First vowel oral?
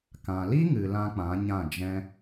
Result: no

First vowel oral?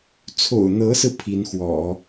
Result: yes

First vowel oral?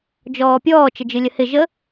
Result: yes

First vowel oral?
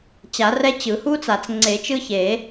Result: yes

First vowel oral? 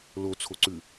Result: yes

